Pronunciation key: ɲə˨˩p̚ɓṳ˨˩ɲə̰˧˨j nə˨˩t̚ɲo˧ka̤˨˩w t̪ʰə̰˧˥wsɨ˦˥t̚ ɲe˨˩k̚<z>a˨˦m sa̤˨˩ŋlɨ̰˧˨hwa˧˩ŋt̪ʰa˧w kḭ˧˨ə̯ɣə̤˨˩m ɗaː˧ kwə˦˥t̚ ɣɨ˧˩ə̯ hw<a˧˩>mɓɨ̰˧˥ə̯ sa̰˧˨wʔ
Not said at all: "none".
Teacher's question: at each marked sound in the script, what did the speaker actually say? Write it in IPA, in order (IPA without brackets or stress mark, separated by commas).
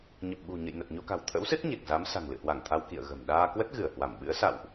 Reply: z, a˧˩